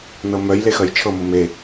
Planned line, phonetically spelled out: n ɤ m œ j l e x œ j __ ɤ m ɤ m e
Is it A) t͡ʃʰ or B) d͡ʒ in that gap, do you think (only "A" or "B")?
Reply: A